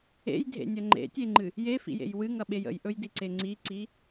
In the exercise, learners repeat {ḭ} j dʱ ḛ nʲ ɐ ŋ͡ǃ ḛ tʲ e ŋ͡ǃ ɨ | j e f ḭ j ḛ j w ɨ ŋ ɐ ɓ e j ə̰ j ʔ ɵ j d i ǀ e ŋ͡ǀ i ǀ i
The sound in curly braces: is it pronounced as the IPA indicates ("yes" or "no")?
no